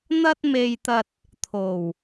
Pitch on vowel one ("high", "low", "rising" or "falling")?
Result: high